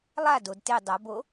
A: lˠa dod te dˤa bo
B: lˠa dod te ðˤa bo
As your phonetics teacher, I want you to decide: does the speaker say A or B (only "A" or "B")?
A